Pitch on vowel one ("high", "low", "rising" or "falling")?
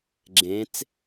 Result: rising